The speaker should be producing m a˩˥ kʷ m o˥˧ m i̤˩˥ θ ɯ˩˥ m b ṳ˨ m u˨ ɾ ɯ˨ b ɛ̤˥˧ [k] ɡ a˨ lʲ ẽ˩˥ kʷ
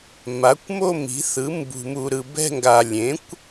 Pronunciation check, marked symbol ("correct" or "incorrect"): incorrect